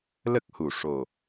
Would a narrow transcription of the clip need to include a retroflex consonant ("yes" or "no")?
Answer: yes